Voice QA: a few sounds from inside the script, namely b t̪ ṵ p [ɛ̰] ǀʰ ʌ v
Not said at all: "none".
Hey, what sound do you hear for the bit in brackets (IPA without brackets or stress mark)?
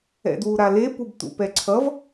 ɛ